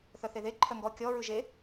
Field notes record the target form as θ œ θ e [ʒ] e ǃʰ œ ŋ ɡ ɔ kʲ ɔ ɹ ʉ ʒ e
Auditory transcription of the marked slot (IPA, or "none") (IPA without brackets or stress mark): ð